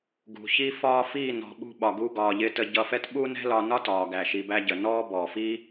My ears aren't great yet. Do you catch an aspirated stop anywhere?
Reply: no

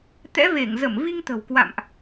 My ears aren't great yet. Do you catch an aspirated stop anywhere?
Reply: no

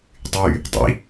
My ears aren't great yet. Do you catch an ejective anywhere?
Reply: no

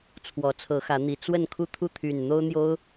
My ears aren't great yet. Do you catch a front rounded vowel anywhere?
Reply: yes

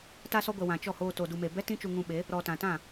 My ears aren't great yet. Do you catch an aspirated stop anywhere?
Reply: no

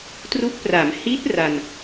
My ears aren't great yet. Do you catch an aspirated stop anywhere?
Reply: no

